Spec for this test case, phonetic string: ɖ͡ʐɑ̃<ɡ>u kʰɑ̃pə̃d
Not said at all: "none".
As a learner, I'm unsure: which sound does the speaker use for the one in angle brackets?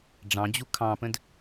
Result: d͡ʑ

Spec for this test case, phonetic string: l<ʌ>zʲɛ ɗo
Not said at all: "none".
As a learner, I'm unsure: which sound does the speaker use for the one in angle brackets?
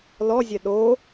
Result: ɔ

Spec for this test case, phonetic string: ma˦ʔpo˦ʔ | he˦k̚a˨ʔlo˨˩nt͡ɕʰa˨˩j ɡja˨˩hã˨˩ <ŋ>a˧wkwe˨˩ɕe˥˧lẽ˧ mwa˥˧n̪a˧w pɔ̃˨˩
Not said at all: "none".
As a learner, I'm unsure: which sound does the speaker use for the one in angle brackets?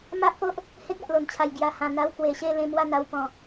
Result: n̪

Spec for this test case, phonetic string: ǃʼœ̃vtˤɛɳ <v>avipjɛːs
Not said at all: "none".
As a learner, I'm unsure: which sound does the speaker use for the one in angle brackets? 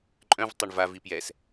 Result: v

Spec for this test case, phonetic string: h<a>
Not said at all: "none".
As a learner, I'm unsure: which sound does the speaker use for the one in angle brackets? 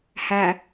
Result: a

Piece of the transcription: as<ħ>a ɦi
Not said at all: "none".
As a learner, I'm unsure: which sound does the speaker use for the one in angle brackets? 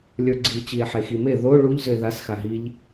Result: x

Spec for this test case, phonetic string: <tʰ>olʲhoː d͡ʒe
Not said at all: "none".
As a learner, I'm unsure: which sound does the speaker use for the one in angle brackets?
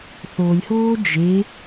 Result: θ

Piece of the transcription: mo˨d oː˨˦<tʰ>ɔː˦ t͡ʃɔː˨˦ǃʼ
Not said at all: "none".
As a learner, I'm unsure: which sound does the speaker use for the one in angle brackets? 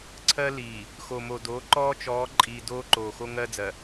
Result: ǃ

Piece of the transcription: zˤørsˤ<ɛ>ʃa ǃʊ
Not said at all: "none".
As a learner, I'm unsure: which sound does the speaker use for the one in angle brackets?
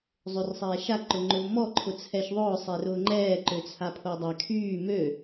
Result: ɛː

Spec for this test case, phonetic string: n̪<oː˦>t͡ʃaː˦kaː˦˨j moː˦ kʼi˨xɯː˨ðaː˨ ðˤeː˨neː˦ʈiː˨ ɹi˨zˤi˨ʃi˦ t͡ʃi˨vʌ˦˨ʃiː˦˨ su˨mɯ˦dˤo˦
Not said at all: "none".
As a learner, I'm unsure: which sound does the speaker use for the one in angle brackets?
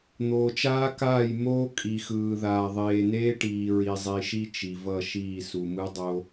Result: oː˨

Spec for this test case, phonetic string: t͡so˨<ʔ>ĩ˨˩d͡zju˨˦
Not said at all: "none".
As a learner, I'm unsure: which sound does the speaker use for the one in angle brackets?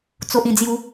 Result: ʔ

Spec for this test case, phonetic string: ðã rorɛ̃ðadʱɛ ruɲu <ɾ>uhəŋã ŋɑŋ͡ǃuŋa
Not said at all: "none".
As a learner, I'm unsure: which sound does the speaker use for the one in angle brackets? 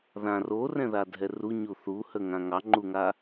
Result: θ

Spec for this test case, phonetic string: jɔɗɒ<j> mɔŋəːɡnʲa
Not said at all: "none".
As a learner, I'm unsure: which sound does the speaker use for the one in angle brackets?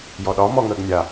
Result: none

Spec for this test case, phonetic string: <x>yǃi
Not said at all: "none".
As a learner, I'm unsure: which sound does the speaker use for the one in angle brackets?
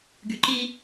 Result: ɡ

